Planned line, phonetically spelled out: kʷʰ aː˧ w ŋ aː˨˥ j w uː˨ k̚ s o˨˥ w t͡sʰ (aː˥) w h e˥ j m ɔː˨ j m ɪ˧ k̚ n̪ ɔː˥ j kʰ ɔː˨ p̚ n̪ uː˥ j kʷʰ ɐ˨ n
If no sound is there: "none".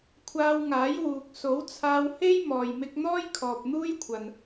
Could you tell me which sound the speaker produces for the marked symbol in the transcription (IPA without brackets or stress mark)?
aː˧